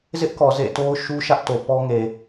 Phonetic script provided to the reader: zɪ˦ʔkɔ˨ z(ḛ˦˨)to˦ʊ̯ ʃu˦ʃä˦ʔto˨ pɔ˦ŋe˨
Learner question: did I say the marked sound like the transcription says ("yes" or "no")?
yes